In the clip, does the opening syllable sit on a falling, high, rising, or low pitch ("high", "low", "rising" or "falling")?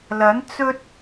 rising